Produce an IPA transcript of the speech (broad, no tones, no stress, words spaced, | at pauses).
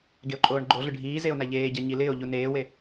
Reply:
ɡeo̯ǃʼoːɳɡ͡ǃoɮʊ ɖʱiː zeo̯naʎeːɟa ɲilɪːo̯ʎu neːwe